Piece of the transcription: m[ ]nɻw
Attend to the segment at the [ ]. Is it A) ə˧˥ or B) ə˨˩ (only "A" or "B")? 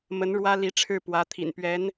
A